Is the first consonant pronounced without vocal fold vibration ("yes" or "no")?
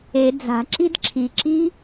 no